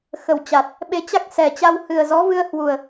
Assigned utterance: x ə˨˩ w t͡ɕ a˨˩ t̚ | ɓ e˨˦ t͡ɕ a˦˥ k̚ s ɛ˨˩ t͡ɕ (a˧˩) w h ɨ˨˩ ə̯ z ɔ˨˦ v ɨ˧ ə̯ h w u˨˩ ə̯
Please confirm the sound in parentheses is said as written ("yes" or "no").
no